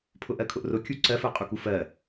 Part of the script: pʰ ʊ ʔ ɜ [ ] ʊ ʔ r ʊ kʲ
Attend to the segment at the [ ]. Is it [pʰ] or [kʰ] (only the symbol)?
kʰ